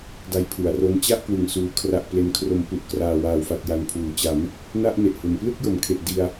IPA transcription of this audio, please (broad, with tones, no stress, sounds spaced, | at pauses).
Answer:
d a˦˥ j pʰ u˩˦ a̯ r o˦˥ n t͡ɕ a˥˩ ʔ k w ɯ˨˩ ŋ s uː˨˩ kʰ r a˨˩ ʔ p l e˨˩ n kʰ r o˩˦ m p u˨˩ ʔ k r aː˨˩ w aː˨˩ w f a˨˩ t̚ j a˨˩ n pʰ uː˩˦ t͡ɕ a˩˦ m | n a˥˩ ʔ n e˨˩ ʔ h u˩˦ n p l ɯ˥˩ k̚ j o˩˦ m kʰ e˨˩ ʔ d i˧ a̯